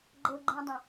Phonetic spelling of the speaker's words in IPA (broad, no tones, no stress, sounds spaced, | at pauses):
ɡ͡ǃ ɤ ɡ͡ǃ ẽ dˤ ə̃